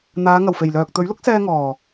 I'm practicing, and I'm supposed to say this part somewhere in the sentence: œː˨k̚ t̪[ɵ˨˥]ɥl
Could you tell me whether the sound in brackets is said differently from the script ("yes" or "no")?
no